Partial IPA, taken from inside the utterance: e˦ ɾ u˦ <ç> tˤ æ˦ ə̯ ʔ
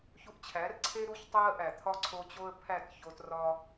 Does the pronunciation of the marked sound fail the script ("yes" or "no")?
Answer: no